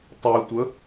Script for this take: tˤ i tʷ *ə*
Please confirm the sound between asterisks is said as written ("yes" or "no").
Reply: yes